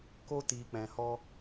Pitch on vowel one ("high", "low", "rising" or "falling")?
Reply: high